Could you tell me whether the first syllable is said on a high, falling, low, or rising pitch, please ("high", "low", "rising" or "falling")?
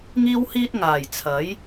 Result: high